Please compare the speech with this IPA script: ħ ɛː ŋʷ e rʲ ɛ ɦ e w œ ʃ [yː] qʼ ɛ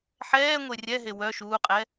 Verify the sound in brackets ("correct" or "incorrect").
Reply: incorrect